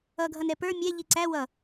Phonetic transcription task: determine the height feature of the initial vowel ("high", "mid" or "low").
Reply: mid